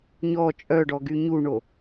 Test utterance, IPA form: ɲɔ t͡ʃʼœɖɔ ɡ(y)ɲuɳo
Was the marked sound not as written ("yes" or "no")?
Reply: no